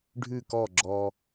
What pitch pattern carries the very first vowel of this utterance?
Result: falling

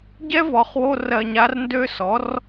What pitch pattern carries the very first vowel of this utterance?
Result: high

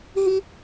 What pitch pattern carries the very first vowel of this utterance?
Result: high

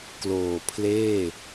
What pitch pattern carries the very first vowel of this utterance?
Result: low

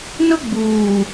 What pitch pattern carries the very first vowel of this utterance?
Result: high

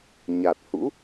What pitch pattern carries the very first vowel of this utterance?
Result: low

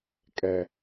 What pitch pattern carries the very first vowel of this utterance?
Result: low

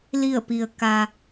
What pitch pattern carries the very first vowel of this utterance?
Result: falling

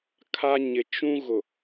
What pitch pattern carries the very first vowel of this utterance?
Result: high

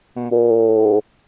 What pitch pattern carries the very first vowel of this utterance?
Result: low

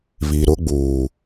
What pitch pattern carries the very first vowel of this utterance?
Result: low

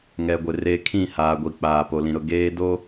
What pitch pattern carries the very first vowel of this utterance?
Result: low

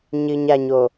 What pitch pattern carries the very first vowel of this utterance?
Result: low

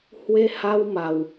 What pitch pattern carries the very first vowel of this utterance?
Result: high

